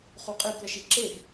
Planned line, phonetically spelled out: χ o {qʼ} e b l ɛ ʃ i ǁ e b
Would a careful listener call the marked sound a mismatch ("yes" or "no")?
no